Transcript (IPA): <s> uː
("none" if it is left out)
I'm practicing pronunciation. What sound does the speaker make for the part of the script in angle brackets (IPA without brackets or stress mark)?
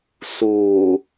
s